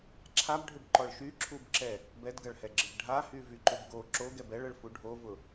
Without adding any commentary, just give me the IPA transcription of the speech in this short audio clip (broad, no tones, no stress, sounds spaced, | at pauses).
ǁʰ a b ɖʱ ʏ b ǃ ɔ ɭ ʃ y ǁʰ u b ǁ ɛ | b ɛ d ɡ ɐ ɭ h ɛ ɡ͡ǁ ə b ɖʱ a h y v y ǃ ʏ b ɡ o ǁ o ɡ ɛ b ɛ ɭ ə ɭ f u ɖʱ o v ʊ